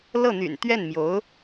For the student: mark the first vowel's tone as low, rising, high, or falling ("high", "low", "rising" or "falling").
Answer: falling